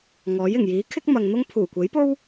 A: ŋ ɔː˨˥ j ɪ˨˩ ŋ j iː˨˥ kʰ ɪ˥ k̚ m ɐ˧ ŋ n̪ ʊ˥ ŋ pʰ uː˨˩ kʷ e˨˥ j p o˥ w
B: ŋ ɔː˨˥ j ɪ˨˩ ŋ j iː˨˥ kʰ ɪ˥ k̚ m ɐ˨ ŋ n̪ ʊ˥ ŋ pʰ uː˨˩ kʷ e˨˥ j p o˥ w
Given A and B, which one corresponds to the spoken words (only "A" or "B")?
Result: B